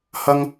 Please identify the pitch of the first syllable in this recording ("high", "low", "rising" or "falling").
high